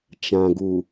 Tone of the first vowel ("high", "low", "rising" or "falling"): low